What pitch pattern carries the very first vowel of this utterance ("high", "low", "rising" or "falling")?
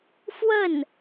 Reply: falling